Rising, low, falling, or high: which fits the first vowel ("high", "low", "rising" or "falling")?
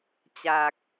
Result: low